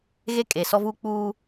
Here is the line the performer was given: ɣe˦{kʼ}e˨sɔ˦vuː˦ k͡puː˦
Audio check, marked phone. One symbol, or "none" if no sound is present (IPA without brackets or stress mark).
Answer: kʼ